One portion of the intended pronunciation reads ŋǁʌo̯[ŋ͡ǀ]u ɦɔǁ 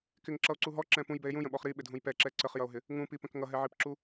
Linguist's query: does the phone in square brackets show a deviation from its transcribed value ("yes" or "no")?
yes